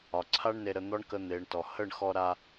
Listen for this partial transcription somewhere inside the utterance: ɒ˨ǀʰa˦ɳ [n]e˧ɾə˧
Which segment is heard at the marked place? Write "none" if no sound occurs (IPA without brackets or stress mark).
n